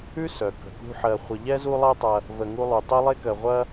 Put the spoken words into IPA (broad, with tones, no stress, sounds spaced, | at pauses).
ʉ˥ s œ˩ k ə̤˩ k ṳ˦ ħ ɜ˨ χʷ ə˨ ʎ ɛ˥ z u˦ lˠ ɜ˦ tˤ ɐ˨ | v ə˨ ŋ u˦ lˠ u˩ tˤ œ˥ lˠ e˥ k ɜ˨ ʁʷ ɐ˥